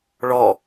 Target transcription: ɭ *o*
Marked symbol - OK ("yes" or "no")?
no